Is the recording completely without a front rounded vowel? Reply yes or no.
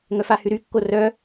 no